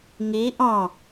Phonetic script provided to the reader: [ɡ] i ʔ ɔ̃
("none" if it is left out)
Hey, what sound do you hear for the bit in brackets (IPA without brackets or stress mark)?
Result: ŋ